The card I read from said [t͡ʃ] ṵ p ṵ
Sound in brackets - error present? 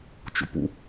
no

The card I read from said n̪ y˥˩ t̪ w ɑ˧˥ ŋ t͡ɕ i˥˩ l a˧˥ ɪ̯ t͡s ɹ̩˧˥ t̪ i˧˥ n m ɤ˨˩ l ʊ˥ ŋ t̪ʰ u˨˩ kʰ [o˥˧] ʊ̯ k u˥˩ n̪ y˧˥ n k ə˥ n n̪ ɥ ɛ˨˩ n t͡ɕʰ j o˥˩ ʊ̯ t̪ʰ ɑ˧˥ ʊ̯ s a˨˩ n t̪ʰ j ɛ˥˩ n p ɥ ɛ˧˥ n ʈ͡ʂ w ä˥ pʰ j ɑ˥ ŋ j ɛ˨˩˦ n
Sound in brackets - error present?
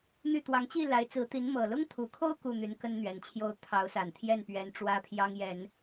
no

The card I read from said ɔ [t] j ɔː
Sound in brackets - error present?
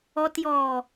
no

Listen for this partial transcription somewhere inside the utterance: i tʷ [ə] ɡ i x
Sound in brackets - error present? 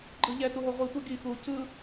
yes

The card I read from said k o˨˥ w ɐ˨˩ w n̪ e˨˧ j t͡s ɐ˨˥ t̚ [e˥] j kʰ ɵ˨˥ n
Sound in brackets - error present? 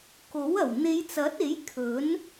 yes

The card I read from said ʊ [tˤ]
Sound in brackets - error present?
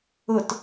yes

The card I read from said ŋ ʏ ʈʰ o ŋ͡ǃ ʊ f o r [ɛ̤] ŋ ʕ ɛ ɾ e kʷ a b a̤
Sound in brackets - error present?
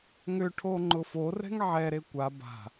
no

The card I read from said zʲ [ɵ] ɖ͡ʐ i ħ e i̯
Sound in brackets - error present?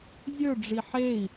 no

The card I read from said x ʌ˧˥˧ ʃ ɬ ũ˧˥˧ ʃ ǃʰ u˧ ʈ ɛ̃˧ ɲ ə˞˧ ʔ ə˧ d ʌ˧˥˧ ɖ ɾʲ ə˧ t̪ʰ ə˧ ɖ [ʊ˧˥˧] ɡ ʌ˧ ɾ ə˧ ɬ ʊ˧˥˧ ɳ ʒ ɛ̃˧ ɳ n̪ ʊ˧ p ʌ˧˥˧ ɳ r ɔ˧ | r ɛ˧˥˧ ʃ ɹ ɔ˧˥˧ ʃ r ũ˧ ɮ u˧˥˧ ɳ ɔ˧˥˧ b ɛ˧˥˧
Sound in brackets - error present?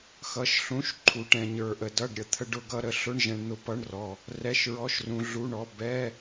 yes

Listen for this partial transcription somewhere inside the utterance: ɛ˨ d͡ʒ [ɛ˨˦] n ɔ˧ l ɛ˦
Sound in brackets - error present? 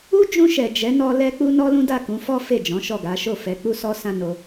no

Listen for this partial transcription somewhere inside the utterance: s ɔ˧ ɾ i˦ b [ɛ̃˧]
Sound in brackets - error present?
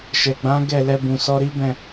yes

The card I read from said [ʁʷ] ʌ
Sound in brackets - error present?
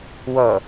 yes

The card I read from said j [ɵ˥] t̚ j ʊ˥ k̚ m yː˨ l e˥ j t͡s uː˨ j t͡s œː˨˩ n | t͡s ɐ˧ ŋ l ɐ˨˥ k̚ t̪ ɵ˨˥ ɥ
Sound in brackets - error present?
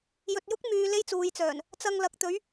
yes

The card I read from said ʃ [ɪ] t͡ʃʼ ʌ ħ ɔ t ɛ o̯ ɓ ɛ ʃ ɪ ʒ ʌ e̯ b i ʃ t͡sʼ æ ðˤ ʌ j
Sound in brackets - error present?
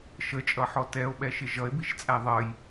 yes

